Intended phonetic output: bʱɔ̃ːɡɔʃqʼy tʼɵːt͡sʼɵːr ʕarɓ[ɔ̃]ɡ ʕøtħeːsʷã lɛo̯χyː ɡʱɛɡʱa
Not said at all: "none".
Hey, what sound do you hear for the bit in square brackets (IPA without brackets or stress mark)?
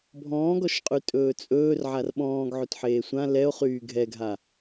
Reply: ɔ̃ː